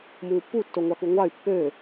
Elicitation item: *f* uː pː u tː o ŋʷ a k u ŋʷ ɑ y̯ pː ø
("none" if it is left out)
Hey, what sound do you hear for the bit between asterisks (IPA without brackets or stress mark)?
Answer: m